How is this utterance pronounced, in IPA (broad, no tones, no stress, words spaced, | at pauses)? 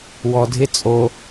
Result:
wɔdʱɪ t͡sʼo